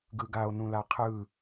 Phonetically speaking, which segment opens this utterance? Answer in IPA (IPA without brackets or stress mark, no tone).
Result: ɡ